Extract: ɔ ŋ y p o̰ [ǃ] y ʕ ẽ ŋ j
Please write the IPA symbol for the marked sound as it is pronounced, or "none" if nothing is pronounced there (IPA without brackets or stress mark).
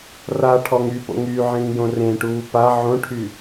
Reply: ŋ